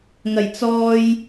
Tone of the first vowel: low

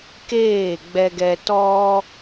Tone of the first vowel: falling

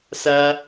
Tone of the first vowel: high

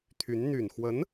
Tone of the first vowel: rising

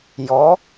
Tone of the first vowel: rising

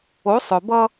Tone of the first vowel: rising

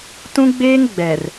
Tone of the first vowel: high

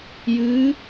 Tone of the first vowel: rising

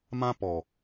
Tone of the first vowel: high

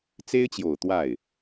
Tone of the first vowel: high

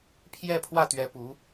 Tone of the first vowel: falling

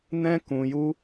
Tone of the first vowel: high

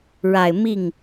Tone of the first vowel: low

